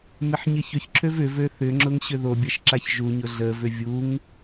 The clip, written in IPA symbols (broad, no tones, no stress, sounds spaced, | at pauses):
m ɪ ħ ɲ ɪ ç ʏ ç ǁʰ ø v ʏ v ø θ ʏ ŋ͡ǁ ʊ ŋ ɕ ʏ ð o bʲ ɐ ʃ ǁ a ç ʒ u ɲ ʊ ɮ ə v ʏ vʲ u ŋ